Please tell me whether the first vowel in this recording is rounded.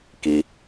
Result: no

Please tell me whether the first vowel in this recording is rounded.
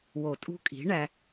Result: yes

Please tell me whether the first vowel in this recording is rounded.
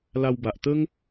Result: no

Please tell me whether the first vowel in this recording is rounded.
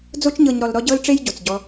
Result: yes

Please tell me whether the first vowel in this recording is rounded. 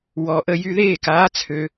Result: yes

